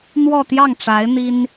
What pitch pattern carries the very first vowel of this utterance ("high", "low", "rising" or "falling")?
falling